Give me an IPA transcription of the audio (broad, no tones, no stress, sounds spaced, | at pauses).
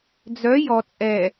d͡z œ j ɔ t͡sʼ ɛ